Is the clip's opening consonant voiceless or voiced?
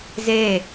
voiced